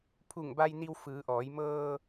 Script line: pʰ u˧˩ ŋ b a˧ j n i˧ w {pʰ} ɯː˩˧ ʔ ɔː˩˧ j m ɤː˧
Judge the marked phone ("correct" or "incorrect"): incorrect